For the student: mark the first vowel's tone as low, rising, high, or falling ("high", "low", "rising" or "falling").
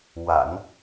low